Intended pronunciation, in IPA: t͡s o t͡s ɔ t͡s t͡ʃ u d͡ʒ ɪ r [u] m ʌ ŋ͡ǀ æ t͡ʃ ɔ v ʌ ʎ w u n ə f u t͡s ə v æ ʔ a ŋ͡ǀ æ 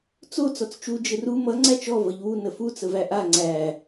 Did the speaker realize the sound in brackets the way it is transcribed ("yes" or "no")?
yes